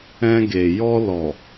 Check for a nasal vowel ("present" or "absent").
present